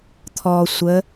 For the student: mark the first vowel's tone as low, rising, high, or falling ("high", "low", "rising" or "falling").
low